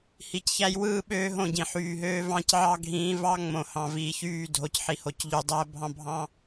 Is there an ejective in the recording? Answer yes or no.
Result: no